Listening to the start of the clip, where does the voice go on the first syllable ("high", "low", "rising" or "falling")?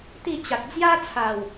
falling